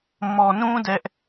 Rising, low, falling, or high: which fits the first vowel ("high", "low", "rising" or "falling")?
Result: low